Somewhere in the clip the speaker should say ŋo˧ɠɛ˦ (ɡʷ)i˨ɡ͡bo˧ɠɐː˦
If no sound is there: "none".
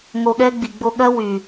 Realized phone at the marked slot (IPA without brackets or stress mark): ɡ͡b